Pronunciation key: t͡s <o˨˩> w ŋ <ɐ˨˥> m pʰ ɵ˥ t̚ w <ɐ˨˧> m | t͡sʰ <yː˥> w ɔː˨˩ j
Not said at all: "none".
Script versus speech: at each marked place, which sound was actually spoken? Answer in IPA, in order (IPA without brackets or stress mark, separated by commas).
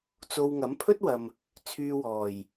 o˧, ɐ˨˥, ɐ˨, yː˧